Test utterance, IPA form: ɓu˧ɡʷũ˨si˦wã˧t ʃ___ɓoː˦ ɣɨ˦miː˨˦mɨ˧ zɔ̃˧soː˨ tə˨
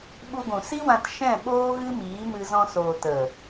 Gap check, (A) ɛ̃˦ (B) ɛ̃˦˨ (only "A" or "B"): B